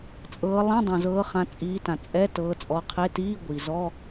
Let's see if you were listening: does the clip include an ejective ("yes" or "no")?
yes